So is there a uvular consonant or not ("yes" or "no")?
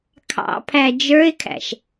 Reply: no